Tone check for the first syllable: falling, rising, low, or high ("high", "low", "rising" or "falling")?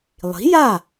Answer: rising